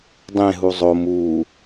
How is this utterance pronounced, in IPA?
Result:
dˤẽɦu zˤom u

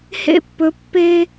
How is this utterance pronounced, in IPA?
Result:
hḛ˧pːɵ˩˧ pːe˧

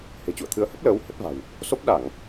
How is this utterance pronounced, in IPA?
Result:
he̤˨˩ t͡ɕṵ˧˨ə̯t̪ʰɨ˨˦ə̯hə˦˥p̚ləː˨˦w hə˦˥t̚va̤˨˩w | so˦˥p̚ɗa˧˩˨ŋ

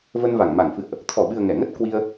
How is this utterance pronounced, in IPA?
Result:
və˧nva˧˩ŋ ma˧˩ŋfɨ̰˧˨ə̯ʔ | t̪ʰɔ˧˩ɓɨ˨˩ə̯ ŋɛ˧˩ŋə˦˥t̚ kwi˧ə̯

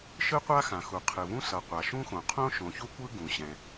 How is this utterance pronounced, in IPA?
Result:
ʃɯ˥qʷa˥xã˩xu˩ qʰɯ˩vũ˥sʌ˩ qʷa˩ʃũ˥xõ˩ qʰõ˥ ʃõ˩ çu˥kʷɯ˥ ɡũ˩ɕɛ̃˩

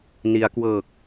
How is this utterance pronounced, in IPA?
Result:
ni˩˦a̯kwɤː˨˩k̚

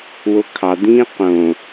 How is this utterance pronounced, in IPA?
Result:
wokʰɑd̪ĩː qõ

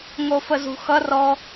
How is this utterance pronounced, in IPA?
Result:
ŋofəzṳxʌ rɔ

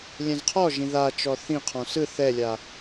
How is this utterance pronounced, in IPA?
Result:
lʲɛ̃zqʰɔʒĩ ðat͡ʃɔ θĩqʰɔ̃ sɯ θɛlʲa

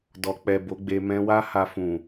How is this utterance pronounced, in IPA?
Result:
dɔ˨k͡pɛ˨ bo˨˦ɡ͡be˧ mɛ̃˧wa˦ha˧fũ˨

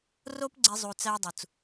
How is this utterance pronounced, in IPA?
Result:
ro˦pɡ͡ǀe˧zˤu˨t͡sæ˧ dˤu˨t͡s

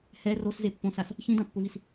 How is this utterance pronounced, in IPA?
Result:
hɛ roszepːõsas | çĩdãpːʊvis

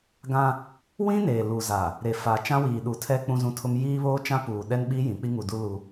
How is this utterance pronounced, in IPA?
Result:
ɡã˦ | wĩ˦ neː˨lu˨za˨ | ɾe˨fa˨ t͡ʃã˦wiː˨ɗu˨tʰɛ˦ k͡pũ˦zũ˦tʰʊ˦m jiː˦βoː˦t͡ʃã˦ puː˨ ɗɛ˦nɓi˦ jĩ˨˦ k͡pi˦ŋu˨du˦ lu˦

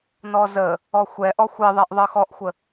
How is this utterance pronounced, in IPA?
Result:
nɔzə | ɔxʷɛʔɔ xʷɪðˤɛʔ ðˤɤxɔʔxʷə

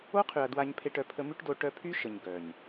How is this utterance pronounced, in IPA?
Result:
o˦qʰy˨ɐ̯ dwa˧ɲpʰe˧ʈ œ˨pʰə˧my˦ʈdo˧ ʈœ˧pʰy˦ʃə˨ɲ ɡœ˨ɲ

